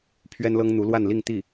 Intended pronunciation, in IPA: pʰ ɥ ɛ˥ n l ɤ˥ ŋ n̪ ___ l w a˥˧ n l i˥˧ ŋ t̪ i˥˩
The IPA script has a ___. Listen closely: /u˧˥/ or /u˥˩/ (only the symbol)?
u˧˥